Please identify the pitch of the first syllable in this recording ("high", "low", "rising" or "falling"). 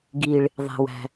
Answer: low